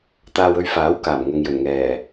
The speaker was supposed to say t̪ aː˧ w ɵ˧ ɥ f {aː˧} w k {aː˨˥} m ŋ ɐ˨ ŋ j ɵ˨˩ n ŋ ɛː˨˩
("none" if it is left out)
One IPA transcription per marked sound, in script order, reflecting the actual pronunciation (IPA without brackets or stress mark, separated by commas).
aː˨˥, aː˨˩